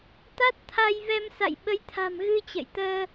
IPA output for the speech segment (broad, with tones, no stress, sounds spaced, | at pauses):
t̪ a˦˥ t̚ t̪ʰ a˧ j v ɛ˧ m s a̰˧˨ j ɓ ə˨˦ j t̪ʰ a̤˨˩ m ɣ ɨ˧ t͡ɕ ə̰˧˨ j t̪ əː˧